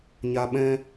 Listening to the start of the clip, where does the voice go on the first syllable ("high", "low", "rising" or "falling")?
high